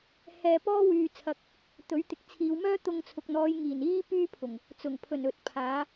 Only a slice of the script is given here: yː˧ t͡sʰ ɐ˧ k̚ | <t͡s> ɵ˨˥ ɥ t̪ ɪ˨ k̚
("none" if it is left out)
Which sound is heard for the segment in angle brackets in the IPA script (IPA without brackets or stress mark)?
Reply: t̪